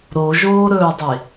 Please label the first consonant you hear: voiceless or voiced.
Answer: voiced